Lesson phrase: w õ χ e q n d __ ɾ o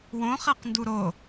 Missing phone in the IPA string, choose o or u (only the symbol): u